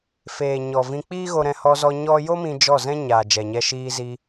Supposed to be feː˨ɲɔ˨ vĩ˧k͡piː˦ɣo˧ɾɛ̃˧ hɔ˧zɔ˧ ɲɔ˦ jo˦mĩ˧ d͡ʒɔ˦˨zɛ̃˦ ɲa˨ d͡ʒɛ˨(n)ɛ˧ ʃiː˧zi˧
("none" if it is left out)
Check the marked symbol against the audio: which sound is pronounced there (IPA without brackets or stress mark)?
ɲ